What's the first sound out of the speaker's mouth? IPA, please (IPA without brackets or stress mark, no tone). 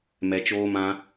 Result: m